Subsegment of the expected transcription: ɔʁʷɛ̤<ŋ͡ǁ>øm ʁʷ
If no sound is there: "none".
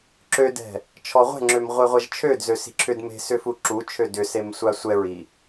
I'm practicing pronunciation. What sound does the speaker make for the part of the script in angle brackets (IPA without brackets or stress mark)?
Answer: ŋ͡ǁ